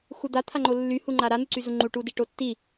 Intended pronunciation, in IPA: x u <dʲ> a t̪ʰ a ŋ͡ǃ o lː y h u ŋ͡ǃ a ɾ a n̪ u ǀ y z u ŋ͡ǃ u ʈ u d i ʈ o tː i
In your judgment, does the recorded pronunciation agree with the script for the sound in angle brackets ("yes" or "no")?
no